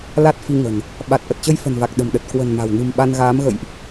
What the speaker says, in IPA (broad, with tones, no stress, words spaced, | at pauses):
la˦˥t̚fi˧ŋə̤˨˩n | ɓa˨˩t̚ ʔə˨˩t̚t͡ɕə˧jfə̤˨˩nva˨˩k̚ ɗə̤˨˩mɗə˨˩t̚ kwə̤˨˩n ma̤˨˩w nɨ̤˨˩mɓa˧nɣaː˨˦m ɣə̰˧˨jʔ